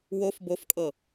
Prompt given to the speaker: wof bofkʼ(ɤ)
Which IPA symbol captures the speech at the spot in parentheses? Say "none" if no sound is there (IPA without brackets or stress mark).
ɤ